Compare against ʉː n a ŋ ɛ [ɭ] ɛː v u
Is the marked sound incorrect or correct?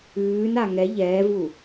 incorrect